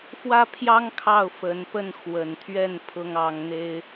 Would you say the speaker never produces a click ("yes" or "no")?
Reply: yes